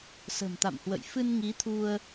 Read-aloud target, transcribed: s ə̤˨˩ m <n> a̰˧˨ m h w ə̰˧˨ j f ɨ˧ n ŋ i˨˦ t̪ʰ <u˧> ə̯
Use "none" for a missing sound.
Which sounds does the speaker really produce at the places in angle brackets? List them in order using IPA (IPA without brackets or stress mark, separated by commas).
t̪, u˧